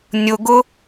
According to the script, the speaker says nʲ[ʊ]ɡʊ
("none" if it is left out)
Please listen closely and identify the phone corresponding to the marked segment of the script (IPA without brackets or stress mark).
ʊ